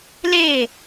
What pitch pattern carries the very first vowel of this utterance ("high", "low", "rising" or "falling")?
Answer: falling